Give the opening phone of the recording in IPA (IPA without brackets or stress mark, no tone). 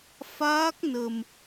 f